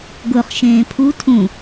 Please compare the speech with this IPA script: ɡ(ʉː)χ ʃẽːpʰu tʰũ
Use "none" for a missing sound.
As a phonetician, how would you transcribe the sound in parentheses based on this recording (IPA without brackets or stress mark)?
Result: ʊː